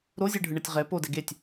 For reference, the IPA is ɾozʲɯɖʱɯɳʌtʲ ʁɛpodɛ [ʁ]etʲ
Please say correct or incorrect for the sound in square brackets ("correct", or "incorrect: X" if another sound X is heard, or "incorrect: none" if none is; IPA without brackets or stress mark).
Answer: incorrect: ɡ